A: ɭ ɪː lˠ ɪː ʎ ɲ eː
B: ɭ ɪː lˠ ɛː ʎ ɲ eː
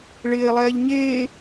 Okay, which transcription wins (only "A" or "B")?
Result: B